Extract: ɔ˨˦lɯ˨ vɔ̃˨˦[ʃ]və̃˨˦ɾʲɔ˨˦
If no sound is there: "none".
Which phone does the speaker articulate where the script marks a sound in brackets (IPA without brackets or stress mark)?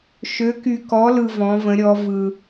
none